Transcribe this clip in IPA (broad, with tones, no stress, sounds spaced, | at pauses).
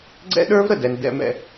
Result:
ɡ͡ǀ ɛ̰˥ ɗ ə˞˥ v ɾ ə˨ d ɛ˥ n d ɛ̰˥ m ɛ̰˦